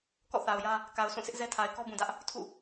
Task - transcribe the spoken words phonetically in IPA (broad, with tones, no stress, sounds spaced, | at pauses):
k ɔ̰˦˨ θ a˨ ʊ̯ j ä˦ | k a˨ ʊ̯ sʰ ũ˦˨ sʰ ɪ˦ ʔ z ɛ˦ tʰ a˨ ɪ̯ k ɔ˦ b ũ˨ d ä˦ ʔ | tʰ ṵ˦˨